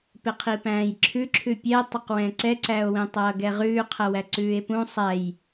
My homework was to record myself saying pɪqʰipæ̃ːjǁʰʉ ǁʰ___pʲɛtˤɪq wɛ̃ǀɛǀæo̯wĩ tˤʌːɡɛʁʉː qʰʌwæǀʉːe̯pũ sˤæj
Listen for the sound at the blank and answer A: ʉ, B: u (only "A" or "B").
A